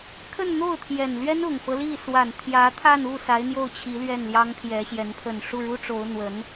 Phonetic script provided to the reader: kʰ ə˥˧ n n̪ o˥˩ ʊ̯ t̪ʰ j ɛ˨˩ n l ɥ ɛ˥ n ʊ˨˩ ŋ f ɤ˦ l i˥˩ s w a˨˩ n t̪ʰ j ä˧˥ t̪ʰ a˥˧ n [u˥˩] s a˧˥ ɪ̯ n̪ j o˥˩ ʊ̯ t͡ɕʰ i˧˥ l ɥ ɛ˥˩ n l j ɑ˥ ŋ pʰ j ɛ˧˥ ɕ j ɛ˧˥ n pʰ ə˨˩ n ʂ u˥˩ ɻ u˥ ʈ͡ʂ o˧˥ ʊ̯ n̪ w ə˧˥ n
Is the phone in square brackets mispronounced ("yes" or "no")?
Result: no